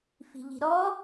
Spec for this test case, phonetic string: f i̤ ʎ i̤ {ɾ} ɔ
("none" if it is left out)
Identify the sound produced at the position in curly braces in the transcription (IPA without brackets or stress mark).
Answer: ɾ